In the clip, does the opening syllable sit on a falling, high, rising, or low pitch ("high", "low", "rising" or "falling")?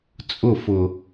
falling